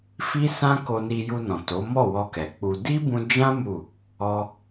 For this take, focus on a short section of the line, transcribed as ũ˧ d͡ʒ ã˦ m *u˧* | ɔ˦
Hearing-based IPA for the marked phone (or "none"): u˦˨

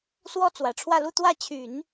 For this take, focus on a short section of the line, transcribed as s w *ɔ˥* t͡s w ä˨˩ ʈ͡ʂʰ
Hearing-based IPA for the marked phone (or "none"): ɔ˥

